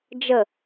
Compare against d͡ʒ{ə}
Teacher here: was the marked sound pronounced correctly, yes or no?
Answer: yes